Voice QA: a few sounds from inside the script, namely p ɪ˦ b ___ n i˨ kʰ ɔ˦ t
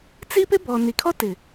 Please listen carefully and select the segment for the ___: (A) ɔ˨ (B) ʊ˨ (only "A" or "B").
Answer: A